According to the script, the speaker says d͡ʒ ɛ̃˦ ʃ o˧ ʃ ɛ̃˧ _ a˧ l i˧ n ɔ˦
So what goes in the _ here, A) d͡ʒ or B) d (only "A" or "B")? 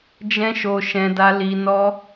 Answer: B